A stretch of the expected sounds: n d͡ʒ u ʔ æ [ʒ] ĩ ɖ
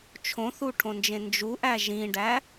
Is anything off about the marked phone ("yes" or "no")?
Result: no